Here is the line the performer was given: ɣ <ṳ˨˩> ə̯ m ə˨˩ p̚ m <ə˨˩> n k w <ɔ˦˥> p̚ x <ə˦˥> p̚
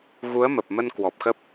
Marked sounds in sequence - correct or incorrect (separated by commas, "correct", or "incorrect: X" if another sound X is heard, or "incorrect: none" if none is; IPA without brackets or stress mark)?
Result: incorrect: u˨˦, incorrect: ə˧, incorrect: ɔ˨˩, correct